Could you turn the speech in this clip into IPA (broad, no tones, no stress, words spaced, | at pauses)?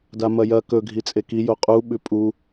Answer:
damɐjɐ kɵ ɡʱit͡sʼeki joqʼu ɓʉpʼu